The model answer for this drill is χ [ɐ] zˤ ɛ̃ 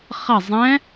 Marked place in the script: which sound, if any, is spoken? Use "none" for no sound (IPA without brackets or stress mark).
ɐ